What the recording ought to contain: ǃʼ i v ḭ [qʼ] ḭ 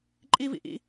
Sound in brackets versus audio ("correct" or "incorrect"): incorrect